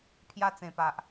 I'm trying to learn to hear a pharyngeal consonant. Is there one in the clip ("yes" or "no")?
no